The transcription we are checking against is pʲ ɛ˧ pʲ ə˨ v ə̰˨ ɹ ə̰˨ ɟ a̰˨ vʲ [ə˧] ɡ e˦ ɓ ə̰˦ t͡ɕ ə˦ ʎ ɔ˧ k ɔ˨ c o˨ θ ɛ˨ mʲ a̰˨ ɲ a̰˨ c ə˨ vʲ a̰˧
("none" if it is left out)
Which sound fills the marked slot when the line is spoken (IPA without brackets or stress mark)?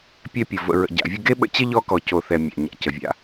ə˧